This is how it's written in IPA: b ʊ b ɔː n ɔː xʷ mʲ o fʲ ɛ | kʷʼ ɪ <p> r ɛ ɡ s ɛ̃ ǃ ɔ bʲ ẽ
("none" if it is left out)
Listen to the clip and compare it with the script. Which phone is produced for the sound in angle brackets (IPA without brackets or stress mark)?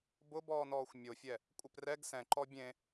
p